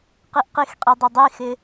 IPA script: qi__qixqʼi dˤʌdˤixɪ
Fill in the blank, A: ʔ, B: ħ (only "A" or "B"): A